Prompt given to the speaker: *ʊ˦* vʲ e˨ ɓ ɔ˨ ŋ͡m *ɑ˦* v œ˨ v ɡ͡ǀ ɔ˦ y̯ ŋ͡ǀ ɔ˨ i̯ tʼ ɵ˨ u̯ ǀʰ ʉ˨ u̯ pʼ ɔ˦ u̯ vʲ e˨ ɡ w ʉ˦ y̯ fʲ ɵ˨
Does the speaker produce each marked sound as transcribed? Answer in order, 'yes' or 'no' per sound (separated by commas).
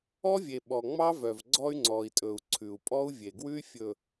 no, yes